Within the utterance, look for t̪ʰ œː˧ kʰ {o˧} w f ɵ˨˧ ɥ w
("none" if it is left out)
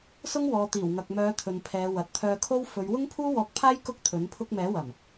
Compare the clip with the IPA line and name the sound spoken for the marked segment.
o˥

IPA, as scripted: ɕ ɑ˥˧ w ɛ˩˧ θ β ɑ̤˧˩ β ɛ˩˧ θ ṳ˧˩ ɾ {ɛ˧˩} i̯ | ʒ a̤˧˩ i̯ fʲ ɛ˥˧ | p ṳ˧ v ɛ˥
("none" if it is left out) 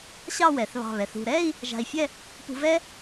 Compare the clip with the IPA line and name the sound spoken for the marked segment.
ɛ˥˧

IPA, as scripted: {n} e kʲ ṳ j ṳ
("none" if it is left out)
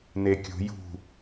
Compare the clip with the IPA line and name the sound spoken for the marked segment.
n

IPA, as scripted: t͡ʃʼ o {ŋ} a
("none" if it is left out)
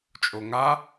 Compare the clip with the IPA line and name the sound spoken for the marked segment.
ŋ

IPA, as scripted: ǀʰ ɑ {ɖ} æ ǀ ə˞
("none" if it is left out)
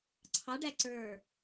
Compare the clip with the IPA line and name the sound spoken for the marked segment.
ɖ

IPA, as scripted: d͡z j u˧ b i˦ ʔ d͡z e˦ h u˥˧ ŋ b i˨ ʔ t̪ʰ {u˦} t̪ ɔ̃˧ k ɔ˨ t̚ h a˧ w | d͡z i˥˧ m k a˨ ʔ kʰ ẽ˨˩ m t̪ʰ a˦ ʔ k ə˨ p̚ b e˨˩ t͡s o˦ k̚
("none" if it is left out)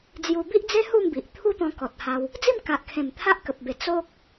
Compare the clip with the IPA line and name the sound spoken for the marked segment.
u˦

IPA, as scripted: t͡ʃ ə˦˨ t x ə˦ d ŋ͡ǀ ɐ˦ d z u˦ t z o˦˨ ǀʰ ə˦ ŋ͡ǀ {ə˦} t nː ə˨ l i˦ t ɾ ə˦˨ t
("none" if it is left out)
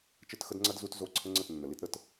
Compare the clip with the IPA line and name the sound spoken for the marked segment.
ə˦˨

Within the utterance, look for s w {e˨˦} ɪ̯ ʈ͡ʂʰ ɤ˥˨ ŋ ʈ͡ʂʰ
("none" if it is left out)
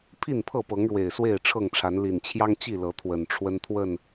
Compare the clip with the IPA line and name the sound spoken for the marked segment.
e˥˨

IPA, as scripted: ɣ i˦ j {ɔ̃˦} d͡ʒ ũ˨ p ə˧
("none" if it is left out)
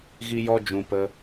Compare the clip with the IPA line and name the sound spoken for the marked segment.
ɔ˦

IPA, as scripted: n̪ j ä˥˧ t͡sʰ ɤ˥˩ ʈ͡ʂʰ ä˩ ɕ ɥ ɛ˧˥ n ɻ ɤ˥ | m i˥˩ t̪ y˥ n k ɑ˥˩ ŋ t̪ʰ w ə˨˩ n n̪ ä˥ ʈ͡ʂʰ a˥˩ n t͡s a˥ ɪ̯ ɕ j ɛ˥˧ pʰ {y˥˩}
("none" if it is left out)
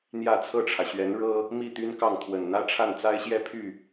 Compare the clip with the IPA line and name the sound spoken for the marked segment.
y˥˩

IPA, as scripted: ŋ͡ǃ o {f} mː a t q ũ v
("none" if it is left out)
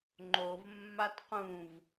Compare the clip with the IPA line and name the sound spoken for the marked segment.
v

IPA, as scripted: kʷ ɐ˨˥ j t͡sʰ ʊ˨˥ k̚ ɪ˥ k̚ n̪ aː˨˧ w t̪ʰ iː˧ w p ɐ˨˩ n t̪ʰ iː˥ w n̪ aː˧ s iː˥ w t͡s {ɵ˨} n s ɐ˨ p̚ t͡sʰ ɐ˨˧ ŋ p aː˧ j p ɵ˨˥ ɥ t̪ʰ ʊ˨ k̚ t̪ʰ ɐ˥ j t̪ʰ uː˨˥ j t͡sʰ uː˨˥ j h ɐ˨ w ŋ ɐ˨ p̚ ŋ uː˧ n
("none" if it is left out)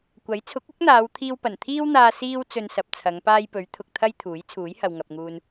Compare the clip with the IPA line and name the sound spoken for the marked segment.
ɵ˧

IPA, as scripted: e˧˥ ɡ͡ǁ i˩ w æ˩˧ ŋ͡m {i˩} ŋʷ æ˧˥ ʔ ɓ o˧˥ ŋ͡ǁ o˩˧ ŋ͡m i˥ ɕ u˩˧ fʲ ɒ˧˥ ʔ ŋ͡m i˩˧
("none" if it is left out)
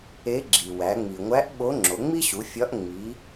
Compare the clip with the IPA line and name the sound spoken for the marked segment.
i˩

